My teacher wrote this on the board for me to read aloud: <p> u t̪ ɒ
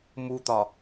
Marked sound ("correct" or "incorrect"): incorrect